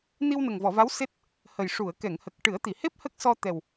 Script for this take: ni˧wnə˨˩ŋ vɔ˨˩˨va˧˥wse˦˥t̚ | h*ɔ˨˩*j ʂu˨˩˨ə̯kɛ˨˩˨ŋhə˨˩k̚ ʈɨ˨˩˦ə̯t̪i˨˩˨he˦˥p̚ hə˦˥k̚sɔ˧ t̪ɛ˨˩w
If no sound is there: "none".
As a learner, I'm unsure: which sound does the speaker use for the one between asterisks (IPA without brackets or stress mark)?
ə˨˩